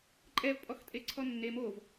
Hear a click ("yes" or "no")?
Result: yes